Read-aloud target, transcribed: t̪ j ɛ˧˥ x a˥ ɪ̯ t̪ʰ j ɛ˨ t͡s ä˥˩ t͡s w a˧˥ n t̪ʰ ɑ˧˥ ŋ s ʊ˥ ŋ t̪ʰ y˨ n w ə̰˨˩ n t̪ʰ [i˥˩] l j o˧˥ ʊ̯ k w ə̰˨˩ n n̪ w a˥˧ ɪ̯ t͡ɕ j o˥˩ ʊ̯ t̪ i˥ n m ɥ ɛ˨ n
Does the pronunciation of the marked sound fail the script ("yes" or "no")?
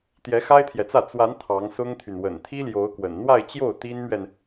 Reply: yes